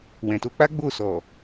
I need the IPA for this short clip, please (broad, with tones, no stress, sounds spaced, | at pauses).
w ɛ̃˨ t o˧ k͡p a˦ ɡ͡b o˦˨ s ɔ˨